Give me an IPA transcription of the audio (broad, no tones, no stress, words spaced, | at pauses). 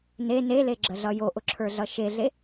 ne neleɡ͡ǁəɮʌ joʔʊǁʰə˞ɮʌ ʃeɮe